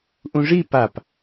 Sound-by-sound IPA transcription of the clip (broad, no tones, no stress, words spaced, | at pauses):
ʔũʐi pap